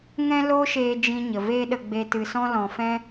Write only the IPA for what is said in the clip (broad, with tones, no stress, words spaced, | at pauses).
ŋɛ̃˦loː˦ʃeː˧ d͡ʒĩ˧ɲə˨ veː˦ɗə˧ɡ͡be˧ tɨ˨sɔ̃˧lɔ̃˨ fɛ̃˦